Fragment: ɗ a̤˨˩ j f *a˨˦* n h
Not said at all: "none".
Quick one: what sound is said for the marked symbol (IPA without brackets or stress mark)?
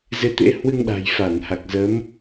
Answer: a˧˩